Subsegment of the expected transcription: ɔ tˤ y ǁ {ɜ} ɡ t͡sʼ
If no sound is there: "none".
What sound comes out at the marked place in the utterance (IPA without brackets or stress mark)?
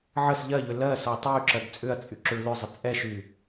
ɜ